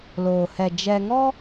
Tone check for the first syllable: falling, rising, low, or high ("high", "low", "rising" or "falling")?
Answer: low